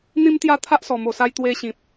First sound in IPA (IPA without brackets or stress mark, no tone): n̪